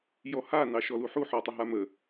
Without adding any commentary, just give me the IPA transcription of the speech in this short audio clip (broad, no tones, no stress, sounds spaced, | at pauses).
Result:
j ɔ h a n ɑ ʃ ɔ l u ħ u ħ ɔ tˤ ə ɦ a m ə